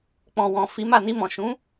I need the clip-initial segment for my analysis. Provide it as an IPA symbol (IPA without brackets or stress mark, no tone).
k͡p